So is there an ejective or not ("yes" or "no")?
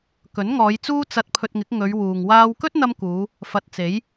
no